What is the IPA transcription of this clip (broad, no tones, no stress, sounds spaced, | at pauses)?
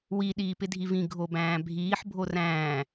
w i ɗ iː p ɪ dʱ i v ĩ ɡʱ o b æ̃ː bʱ iː ħ bʱ o r æ̃ː